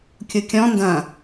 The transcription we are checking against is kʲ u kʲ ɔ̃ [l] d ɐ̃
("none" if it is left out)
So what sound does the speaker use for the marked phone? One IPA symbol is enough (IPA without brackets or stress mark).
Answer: n